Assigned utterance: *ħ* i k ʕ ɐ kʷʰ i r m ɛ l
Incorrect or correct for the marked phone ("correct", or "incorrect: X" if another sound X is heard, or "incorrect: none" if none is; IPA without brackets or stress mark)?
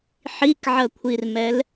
correct